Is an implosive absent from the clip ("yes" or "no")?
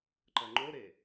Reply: yes